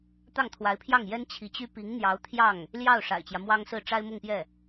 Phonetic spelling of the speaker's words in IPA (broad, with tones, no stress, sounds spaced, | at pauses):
t̪ ɑ˥˩ ŋ t̪ʰ w a˧˥ ɪ̯ pʰ j ɑ˥˩ ŋ j ɛ˥ n t͡ɕʰ i˧˥ t͡ɕ y˥ p i˧˥ ŋ n̪ j ɑ˧˥ ʊ̯ t̪ʰ j ɑ˥˩ ŋ | l j ɑ˥˩ ʊ̯ ʂ a̰˨˩ ɪ̯ t͡ɕ j ä˦ m w ɑ˥ ŋ s ɹ̩˥˩ ʈ͡ʂ a˥ ɪ̯ m ʊ˥˧ ŋ p j ɛ˥˩